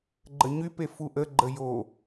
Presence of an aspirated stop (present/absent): absent